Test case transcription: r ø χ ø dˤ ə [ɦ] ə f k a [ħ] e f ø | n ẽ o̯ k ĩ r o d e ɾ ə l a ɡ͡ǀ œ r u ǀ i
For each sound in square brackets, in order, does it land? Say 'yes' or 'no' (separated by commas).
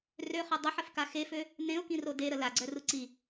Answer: no, no